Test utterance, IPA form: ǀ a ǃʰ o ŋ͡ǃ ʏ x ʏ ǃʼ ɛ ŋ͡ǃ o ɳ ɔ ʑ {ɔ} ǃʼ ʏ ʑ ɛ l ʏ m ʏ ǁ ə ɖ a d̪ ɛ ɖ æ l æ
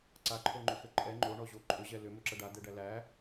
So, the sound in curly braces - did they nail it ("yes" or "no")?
no